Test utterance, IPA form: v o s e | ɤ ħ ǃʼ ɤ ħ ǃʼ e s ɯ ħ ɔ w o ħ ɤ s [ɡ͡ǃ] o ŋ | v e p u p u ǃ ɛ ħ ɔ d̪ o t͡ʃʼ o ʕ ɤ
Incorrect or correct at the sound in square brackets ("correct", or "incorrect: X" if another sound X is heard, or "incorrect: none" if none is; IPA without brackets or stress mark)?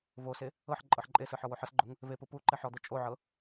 correct